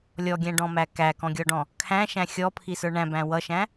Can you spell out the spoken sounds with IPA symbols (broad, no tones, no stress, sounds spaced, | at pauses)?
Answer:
lʲ ɔ ɡʲ æ̃ ɖ ɔ̃ m æ k æ k ɔ̃ ɡʲ ɔ ɖ ɔ̃ | kʰ æ̃ ʃ æ̃ xʲ ɔ pʰ i s ə˞ ɳ æ̃ b æ̃ w ʌ ʃ æ̃